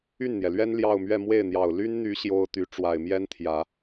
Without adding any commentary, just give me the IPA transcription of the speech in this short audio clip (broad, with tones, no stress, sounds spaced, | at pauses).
y˥˩ n n̪ j ɛ˩ l ɥ ɛ˥ n l j ɑ˥˧ ʊ̯ m ɥ ɛ˥˧ m w e˥˩ ɪ̯ n̪ j ɑ˨˩ ʊ̯ l y˥ n n̪ y˧˥ ɕ j o˥ ʊ̯ t̪ y˧˥ ʈ͡ʂ w a˨˩ ɪ̯ m j ɛ˥ n t̪ʰ j ä˨˩˦